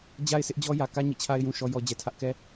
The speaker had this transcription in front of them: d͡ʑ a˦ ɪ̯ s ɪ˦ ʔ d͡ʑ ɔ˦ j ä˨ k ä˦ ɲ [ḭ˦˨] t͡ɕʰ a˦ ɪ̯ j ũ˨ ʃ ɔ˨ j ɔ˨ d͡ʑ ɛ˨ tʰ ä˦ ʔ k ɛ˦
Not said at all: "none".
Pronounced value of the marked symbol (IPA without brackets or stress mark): ḭ˦˨